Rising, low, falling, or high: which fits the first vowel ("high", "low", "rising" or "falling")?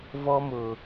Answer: high